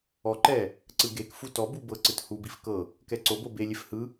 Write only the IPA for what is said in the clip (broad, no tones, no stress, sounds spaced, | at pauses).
ɔ ǃ ɛ | ǀ ɯ ɡ e k f u t ɔ b u b ɤ ǀ ɯ t h u b i f k ɤ | k ɛ ǀ o b o b e lʲ e f h ɯ